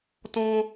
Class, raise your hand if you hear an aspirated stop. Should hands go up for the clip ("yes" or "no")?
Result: no